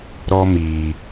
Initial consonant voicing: voiced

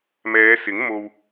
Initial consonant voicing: voiced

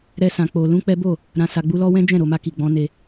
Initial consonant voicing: voiced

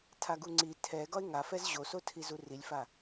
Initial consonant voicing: voiceless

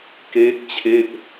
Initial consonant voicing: voiceless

